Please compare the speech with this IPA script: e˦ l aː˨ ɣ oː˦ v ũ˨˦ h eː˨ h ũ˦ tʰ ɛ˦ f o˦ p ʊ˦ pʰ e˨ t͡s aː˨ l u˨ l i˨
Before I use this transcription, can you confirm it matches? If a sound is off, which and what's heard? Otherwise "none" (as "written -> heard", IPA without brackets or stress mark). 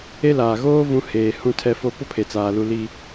none